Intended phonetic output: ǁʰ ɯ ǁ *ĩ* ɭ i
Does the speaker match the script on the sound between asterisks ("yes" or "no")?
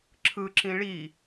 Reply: yes